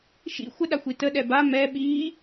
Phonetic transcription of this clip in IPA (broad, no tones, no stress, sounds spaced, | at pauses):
ʃ ḭ xʷ ə ɗ a xʷ i t ə ɗ ɛ b a m ɛ ɓ iː